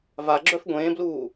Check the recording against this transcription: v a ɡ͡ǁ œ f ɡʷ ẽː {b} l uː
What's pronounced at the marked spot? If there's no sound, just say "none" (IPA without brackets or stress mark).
b